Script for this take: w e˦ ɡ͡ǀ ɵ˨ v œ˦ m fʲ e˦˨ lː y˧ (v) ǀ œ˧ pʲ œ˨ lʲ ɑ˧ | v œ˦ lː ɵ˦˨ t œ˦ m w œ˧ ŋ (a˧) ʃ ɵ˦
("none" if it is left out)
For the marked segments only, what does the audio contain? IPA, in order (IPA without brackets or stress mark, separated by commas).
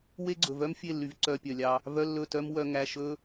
v, æ˧